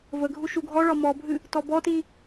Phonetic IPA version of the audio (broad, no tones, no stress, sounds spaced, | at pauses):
v ə ɡʱ u ʃ u ɡʱ ɔ ɭ ɒ m ɔ bʱ ɨ | t ɔ b ɔ t i